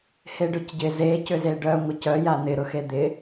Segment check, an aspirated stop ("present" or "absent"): absent